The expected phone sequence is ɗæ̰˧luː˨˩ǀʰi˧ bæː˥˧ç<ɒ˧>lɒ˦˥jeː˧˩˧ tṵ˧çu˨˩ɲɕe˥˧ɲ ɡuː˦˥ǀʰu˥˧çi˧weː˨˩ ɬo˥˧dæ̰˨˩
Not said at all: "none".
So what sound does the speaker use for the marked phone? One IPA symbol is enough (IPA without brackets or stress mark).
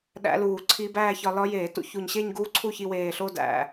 ɒ˧